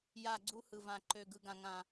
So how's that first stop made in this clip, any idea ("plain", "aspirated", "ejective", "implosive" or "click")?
click